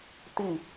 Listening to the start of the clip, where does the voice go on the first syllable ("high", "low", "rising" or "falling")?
falling